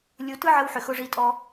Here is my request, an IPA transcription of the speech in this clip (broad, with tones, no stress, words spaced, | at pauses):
lʲu˧ tɯ˦ʕə˧w ħʏ˨xʊ˧ʐi˧tʼɔ˧